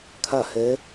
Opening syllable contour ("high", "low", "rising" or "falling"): falling